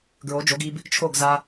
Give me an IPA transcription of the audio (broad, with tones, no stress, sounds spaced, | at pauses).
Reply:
ɡ ɹ o˨˦ d͡ʒ o˨˦ ɡ i˧ b | t͡ʃʰ o˦˨ ɡ z a˧